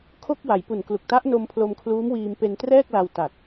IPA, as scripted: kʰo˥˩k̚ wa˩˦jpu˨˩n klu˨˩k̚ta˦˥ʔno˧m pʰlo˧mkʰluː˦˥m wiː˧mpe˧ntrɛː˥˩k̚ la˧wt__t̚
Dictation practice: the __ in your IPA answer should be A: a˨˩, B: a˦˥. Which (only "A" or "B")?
A